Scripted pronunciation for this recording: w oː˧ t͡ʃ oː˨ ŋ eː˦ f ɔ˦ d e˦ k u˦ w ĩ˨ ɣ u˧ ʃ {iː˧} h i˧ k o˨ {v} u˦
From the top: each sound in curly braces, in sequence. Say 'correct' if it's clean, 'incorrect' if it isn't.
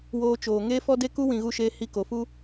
incorrect: eː˧, incorrect: f

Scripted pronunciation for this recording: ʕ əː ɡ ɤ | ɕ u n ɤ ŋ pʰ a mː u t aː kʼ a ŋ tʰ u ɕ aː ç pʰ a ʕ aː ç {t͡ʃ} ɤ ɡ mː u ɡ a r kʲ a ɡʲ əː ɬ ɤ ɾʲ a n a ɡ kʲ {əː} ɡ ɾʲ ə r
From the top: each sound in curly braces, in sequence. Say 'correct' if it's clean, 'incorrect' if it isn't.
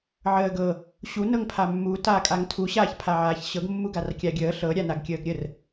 incorrect: ɕ, correct

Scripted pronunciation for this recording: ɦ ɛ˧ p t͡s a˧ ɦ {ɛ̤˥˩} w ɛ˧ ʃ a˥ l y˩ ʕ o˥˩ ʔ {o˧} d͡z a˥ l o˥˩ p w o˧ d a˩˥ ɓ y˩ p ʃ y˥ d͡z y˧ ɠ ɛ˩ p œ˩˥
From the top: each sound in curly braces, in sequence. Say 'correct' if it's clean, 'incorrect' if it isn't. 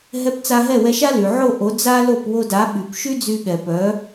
incorrect: ɛ˥˩, incorrect: o˩˥

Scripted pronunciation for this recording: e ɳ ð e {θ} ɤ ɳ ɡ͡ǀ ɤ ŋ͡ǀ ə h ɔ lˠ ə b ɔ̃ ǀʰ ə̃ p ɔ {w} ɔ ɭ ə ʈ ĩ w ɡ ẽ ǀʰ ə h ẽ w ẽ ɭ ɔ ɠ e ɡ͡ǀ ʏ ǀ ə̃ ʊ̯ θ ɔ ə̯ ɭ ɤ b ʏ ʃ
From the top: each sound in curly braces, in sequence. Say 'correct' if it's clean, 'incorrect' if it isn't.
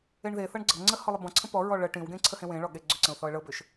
correct, incorrect: ɹ

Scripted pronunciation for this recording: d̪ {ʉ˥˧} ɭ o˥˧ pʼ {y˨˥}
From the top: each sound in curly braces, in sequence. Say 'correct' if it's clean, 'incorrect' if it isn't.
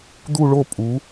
incorrect: u˥˧, incorrect: u˨˥

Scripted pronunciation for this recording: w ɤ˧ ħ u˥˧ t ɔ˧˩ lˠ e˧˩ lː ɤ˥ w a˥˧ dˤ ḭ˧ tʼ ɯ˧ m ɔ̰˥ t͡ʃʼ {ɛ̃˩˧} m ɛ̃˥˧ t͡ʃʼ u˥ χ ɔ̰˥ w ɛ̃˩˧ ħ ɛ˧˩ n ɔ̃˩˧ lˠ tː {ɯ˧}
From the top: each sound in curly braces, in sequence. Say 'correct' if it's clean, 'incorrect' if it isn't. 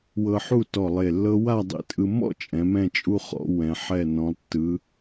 correct, incorrect: ɯ˩˧

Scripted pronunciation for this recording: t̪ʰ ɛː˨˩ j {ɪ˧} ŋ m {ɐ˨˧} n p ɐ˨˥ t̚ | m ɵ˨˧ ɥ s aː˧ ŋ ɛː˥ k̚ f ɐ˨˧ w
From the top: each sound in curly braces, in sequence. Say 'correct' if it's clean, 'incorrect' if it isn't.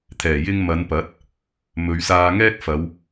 correct, correct

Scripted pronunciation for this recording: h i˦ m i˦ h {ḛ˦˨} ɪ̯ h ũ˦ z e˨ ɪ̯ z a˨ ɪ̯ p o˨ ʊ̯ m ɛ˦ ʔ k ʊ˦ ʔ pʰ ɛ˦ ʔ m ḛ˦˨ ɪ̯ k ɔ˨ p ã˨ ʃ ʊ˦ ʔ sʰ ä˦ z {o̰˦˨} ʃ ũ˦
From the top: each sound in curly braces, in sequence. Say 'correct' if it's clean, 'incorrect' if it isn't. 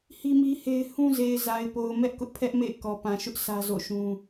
incorrect: e˦, correct

